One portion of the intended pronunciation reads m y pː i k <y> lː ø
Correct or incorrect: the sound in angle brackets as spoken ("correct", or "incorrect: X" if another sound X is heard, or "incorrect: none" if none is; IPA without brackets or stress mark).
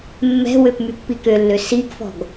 incorrect: ø